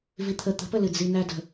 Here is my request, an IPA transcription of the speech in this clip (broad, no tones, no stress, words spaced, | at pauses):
vit̪ʰə t̪ə̤pəlɨ d͡zinædə̤